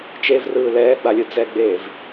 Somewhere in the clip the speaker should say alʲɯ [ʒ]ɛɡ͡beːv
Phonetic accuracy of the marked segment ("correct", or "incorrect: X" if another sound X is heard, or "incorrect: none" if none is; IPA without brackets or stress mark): incorrect: d͡z